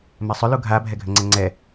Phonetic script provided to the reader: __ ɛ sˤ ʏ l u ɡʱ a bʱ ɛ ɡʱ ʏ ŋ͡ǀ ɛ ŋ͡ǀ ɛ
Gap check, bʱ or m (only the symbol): m